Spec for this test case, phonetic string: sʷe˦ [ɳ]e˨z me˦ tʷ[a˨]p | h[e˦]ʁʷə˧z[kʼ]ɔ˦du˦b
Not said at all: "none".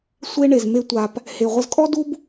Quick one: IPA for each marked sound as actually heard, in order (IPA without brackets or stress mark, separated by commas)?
ɳ, a˧, e˨, kʼ